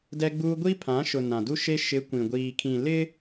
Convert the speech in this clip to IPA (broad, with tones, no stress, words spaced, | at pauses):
dɛ˦ɡ͡buː˦ ɡʷi˦pʰã˨˦ʃʊ˨ nã˨du˦ʃe˦ ʃɪ˨˦ kʷĩ˨ɡʷiː˨kʰĩ˨ lɪ˦